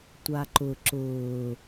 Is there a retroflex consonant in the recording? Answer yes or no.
no